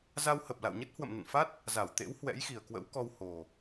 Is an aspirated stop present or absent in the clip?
absent